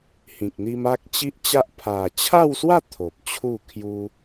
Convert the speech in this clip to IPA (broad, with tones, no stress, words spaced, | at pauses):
hĩ˨k̚n̪i˧m a˦k̚t͡ɕi˦ʔt͡ɕa˦ʔ pʰa˨˩t͡ɕʰa˥˧wswa˥˧ t̪ʰo˨p̚t͡ɕʰu˥˧kʰju˦